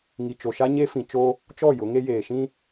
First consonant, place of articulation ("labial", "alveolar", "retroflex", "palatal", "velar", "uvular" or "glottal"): velar